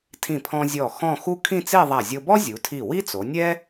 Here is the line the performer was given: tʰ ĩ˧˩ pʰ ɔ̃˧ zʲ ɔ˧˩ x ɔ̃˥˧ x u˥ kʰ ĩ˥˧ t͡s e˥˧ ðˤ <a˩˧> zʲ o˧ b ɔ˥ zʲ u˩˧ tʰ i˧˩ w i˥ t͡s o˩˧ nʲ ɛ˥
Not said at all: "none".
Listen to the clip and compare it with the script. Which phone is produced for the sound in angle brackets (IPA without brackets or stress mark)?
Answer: a˧˩